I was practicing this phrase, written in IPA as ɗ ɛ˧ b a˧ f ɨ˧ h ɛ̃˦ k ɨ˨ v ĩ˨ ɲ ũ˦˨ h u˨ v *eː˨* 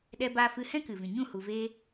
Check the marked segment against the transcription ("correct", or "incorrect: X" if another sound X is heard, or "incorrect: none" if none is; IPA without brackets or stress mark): incorrect: eː˧